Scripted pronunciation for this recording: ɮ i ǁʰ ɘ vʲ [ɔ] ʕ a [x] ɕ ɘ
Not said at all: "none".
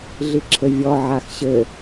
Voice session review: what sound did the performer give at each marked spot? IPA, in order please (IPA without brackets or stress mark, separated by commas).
ɔ, x